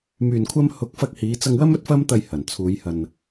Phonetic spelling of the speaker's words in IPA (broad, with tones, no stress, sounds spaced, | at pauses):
m yː˨ n kʷʰ ɐ˧ m h ʊ˨˥ k̚ f ɐ˧ k̚ h iː˨˧ t͡s ɐ˧ ŋ w ɐ˥ m ɵ˥ t̚ f ɐ˥ m t̪ ɐ˧ j h ɐ˨˩ n t͡sʰ uː˨˧ j h ɐ˨ n